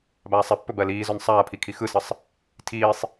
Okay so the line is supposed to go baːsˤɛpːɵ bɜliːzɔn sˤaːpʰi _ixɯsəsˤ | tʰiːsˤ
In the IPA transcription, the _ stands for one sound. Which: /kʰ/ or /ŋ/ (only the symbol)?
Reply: kʰ